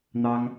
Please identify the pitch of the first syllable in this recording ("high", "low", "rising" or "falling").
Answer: high